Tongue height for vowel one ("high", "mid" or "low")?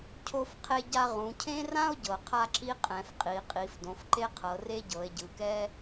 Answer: mid